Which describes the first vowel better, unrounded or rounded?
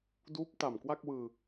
rounded